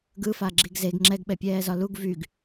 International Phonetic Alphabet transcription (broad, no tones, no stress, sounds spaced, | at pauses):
ɡ ɯ f a ɡ͡ǁ i ɡ z e ɡ ŋ͡ǁ ɛ ɡ ɓ ɛ pʲ ɛː z ɒ l u ɡ v y ɡ